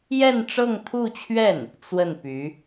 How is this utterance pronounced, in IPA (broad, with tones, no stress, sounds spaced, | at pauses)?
j ɛ˥˧ n ʈ͡ʂ ɤ˥˧ ŋ t̪ʰ u˥˧ t͡ɕʰ ɥ ɛ˥˩ n | t͡s w ə˥˩ n p y˧˥